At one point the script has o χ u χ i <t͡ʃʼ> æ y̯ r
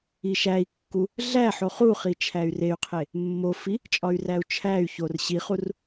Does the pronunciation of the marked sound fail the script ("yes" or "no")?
yes